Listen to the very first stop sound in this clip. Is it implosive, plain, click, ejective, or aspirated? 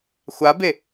plain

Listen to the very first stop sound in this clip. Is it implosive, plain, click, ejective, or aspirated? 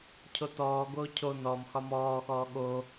aspirated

